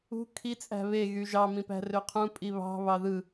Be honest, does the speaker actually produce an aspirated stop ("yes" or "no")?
yes